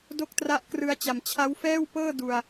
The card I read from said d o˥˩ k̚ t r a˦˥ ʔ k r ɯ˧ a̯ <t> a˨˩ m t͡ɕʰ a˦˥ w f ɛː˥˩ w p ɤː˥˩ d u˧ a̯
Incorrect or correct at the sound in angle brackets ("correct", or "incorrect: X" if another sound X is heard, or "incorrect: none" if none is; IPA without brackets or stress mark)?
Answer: incorrect: t͡ɕ